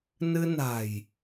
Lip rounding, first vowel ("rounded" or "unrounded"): unrounded